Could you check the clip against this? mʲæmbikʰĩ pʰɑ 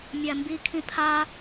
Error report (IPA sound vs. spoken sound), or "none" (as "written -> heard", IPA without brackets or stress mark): ɑ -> a